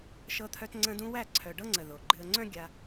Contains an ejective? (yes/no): no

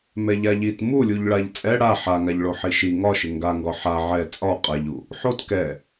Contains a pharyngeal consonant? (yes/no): yes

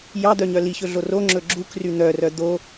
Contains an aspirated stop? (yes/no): no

